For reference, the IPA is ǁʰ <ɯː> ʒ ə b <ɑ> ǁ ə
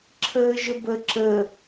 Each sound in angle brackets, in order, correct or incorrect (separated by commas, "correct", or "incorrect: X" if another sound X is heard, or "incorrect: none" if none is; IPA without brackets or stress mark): incorrect: əː, incorrect: ə